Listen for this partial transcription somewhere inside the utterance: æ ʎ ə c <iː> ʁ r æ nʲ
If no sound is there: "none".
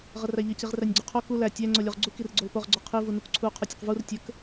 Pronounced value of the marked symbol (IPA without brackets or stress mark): i